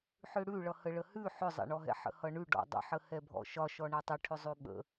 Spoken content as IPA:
ħʏɽʉɭʌ həɭəhʉ ħʏzˤɛ̰ɳɔɦɛ̰ ħə̰hʌɳʉ ɖɔ̰dˤə̰ħə hɛbʱɔ̰ʃɒ ʃɔɳɛtˤə ʈʰʏzˤʉɓə̰

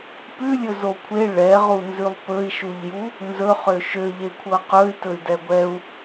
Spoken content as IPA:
pʉlʲɵzo kʷʰe ɭɛʁunzʉlˠ pɵi̯ʃuʎju | nzɵχø ʃøʎekʷʰɤ qɵy̯tɵy̯dɛ ɡʷɛu̯

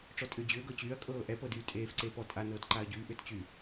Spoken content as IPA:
ʈ͡ʂɔtʼʏːd͡ʑʏː ɡɤt͡ɕyːɐ̯ kʼɤːʔɛpɤ dyːtʼeːfǀeː pɔtʼa nɤːtǃaɐ̯ɟyː ʔʏːtt͡ɕy

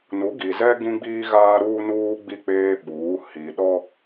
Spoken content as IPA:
nu˨˦ɡi˨zɛ˦ ɡĩ˦ɡ͡biː˦ ɣaː˦ɾuː˦nuː˦ɡ͡bi˦˨ k͡peː˦ɓuː˨˦ hi˨ ɗɔ˦

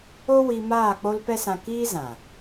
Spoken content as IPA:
o˦wi˧maː˦˨ k͡po˦lpɛ˦sã˧ kiː˦zã˨

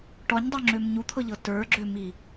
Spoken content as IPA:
ʈɔɲdˤøŋ͡ǁøm ɲut̪ʰɤʎɤ tə˞ɡ͡ǁømi

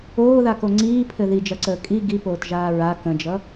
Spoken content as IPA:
oːðako ŋ͡ǀiːpʰɘ ðid͡ʒɐǀəː kʼi ɡipoːtʒaː ɹa kə̃d͡ʒʌ

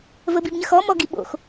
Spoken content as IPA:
vəbibɲəxɔ mɔɡiɓo̰x

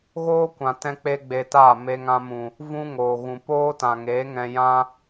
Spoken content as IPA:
ɣoː˦kʷã˨ tɛ̃˦k͡pe˦ɡ͡be˧taː˦˨ me˧ŋã˧mũ˨ | vũ˦ŋoː˨ ɣũ˨ poː˦ tã˨ŋeː˨˦ ŋɛ̃˧jã˦

